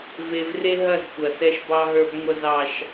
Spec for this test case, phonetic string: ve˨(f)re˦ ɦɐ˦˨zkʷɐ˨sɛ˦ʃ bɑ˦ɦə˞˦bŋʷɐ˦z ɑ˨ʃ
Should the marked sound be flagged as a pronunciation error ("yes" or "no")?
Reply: yes